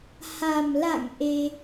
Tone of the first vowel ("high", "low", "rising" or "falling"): low